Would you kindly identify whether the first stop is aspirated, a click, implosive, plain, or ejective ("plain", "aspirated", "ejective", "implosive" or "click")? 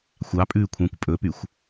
ejective